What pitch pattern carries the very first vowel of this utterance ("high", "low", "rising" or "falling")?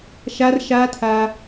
high